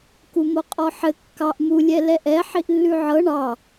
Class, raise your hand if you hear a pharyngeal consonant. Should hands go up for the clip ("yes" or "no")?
yes